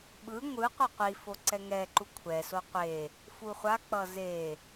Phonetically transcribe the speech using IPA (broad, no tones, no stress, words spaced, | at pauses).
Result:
ɓɯ ŋʷɯ qʷʌqʷifo ǀɛŋɛǃu kʷʰɛso qʷe | fuχʷak͡pʌ ze